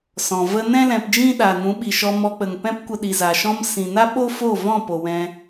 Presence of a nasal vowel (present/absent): present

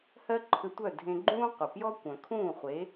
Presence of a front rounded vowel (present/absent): present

